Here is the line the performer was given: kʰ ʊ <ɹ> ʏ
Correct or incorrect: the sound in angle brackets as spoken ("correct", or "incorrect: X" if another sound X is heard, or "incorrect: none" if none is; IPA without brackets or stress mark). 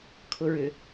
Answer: correct